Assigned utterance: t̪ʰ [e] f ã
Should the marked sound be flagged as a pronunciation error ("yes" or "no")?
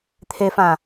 no